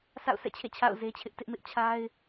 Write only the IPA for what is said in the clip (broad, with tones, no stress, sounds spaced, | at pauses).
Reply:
sʰ a̰˦˨ ʊ̯ sʰ ɛ̰˦˨ t͡ɕʰ ḛ˦˨ t͡ɕʰ a̰˦˨ ʊ̯ z e˦ t͡ɕʰ ɪ˦ ʔ t ɪ˦ ʔ m ɪ˦ ʔ t͡ɕʰ a˦ ɪ̯